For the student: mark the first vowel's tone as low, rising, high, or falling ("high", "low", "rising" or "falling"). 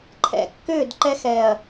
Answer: low